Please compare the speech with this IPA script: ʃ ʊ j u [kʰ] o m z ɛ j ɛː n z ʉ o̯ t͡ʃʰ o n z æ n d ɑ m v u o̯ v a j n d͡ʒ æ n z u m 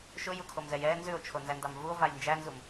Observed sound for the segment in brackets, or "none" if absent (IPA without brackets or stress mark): kʰ